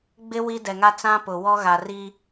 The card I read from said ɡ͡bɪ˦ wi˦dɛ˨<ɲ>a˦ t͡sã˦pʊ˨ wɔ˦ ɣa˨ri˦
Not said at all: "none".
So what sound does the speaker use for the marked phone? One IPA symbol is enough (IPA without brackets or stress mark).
ŋ